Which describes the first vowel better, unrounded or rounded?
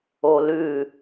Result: rounded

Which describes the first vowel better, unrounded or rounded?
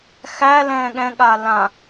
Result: unrounded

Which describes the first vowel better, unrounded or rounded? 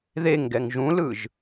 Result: unrounded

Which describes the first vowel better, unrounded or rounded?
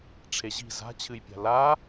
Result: unrounded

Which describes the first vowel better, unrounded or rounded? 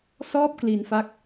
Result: rounded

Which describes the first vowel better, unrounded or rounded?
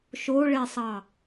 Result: rounded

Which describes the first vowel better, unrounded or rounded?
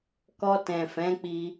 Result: rounded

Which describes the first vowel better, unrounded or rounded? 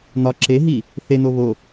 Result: rounded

